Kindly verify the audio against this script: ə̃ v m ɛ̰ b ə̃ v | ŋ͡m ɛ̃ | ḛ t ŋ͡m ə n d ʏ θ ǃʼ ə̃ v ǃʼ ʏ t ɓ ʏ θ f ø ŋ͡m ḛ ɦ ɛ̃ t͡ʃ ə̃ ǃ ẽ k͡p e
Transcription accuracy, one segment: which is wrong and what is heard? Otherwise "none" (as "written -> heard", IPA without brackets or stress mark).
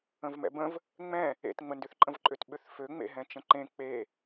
none